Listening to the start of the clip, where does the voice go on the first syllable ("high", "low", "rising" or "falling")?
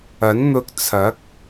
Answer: rising